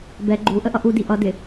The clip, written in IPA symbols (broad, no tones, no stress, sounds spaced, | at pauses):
b ɛ ɡ͡ǃ u ʔ ə ʔ ʌ ʔ u d i ʔ ʌ d ɪ